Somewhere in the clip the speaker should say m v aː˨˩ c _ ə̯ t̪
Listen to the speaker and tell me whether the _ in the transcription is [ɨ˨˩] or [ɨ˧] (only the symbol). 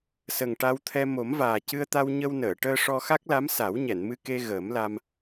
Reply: ɨ˧